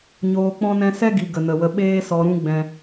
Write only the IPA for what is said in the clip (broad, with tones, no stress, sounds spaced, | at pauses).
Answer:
ɲ oː˧ k͡p ɔ̃˦ n ɛ̃˦ s ɛ˦ ɡ i˨ ɡ ə˨ n ə˨ w ə˧ ɓ eː˦ s ɔ˧ ɾ ũ˦ ɡ͡b ɛ̃˧